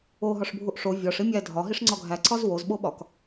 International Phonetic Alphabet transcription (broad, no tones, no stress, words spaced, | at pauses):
oɦɒʂbʱuʔ ʂo vʲɒʂ imʲæ dʱɒɦiʂ ŋ͡ǀɒɡʱæ ǀɒzwozɓoɓɒk